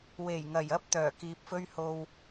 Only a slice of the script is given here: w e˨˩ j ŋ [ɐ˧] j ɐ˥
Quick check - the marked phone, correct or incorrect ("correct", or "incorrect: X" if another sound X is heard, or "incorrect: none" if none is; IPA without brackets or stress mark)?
incorrect: ɐ˨˩